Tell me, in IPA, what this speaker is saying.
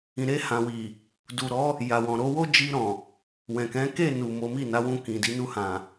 ĩ˨ ɾ e˧ h ã˨ w i˨ | d u˨ ɾ ɔ˨˦ | j a˨ w ɔ̃˨ ɾ o˨˦ w o˦ d͡ʒ i˧ ɾ ɔ̃˨ | w ɛ̃˨ k ɛ̃˨˦ k e˦˨ n u˨ m o˨˦ m i˦˨ n a˨˦ w ũ˧ k ĩ˨ d i˨˦ n u˧ h ã˨

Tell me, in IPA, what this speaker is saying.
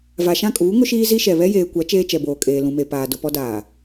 v a˨ ʃ ã˦˨ kʼ uː˨˦ ŋ ʊ˦ ʃ iː˦ z i˦ ʃ ɛ˨ β ɛ˦ j eː˨ kʷ a˨˦ t͡ʃ eː˦ t͡ʃ ɛ˨ b oː˨ kʼ eː˨ l ũ˨ m e˨ p aː˨ d ʊ˨ p ɔ˦ d aː˨

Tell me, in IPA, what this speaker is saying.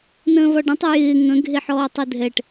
n ə̃ː v ɒ ɖ ə̃ tˤ ɯ j ɪː ŋ ə̃ ɡʱ e ħ ɔː tˤ ɯ dʱ ɛ ʈ

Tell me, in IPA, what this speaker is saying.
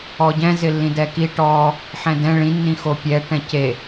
ɔ ɟ ɛ̃ z ɪ lː ĩ d ɛ k i ʈ ɔ | ħ ɛ̃ d ɛ̃ ɭ ĩ nː ĩ x o pʲ ɛ ʈ ɛ̃ c e

